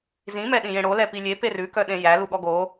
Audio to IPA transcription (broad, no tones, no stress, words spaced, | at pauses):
zĩ mɛɗĩjẽɽo lɛpilʲe perʉkœ ɗẽjæ luɠɔɡo